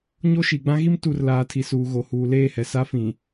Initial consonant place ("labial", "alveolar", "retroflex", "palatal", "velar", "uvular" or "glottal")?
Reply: palatal